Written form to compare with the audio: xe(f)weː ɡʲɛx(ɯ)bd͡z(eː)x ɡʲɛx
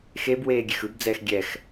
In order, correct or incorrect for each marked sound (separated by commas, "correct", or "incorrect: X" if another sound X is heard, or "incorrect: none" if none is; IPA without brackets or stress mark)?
incorrect: b, correct, incorrect: ɛː